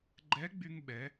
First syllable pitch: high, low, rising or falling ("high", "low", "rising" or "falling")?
rising